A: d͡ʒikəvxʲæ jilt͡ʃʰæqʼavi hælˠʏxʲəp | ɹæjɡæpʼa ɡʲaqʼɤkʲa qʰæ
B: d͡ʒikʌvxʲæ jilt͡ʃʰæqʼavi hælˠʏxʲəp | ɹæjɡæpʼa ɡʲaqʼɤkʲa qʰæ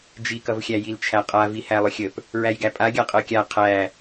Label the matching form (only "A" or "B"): B